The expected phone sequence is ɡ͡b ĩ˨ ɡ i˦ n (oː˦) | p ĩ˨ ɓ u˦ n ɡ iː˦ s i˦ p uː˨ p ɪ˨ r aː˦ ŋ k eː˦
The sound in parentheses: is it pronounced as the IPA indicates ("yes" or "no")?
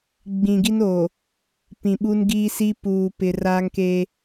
no